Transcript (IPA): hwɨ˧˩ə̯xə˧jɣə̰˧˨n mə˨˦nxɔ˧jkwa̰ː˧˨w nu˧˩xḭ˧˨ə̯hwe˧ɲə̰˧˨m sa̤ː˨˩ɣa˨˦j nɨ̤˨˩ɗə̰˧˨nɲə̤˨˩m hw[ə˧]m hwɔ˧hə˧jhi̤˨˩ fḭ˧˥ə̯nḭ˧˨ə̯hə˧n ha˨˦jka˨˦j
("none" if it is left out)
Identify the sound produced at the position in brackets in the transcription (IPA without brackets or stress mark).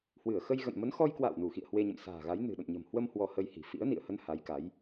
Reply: ə˧